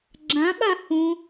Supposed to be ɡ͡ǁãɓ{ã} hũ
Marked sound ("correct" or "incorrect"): incorrect